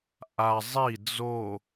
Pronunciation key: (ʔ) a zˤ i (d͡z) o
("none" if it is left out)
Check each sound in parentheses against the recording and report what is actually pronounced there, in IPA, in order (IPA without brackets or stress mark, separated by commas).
ʔ, d͡z